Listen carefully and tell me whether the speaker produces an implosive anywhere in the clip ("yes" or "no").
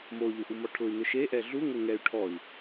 no